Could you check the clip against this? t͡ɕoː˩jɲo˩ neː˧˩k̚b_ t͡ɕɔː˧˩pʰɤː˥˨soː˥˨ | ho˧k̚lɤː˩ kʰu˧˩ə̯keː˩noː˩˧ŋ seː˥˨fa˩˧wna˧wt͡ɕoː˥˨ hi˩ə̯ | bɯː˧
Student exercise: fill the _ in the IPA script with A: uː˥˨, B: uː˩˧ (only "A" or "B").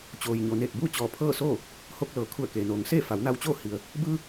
A